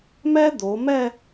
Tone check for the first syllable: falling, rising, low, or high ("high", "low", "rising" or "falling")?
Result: high